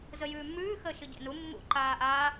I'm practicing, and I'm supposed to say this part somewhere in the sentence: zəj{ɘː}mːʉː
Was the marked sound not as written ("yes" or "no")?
yes